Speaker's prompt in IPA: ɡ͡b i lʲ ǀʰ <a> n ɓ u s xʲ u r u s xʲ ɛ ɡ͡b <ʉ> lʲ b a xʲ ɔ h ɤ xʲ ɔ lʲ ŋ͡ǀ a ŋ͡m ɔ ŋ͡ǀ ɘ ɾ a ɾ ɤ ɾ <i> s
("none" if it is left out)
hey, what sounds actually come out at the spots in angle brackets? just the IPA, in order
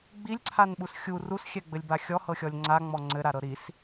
a, ɘ, i

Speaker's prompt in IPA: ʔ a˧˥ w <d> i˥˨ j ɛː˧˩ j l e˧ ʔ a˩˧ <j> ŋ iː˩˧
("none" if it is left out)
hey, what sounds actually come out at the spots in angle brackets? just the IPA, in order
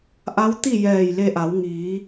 t̪, w

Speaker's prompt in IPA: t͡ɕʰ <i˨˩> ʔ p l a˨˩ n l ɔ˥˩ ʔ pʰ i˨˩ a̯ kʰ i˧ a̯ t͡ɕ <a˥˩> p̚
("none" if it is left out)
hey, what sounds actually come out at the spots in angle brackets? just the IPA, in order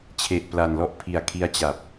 e˨˩, a˨˩

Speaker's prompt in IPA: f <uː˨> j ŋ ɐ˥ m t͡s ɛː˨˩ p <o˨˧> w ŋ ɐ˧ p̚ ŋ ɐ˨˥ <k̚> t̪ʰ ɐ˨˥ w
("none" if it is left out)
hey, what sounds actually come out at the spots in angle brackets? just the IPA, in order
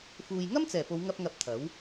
uː˨, o˨˧, p̚

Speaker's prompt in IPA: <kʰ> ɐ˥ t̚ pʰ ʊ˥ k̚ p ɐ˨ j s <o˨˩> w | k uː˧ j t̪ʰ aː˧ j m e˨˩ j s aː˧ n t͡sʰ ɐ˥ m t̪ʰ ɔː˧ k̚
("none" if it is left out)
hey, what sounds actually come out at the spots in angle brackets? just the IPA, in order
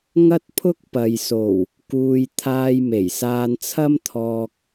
ŋ, o˨˩

